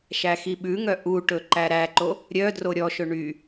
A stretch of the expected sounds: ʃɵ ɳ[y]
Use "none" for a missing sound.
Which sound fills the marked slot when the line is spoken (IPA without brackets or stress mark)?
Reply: y